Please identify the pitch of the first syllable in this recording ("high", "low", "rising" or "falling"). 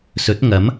rising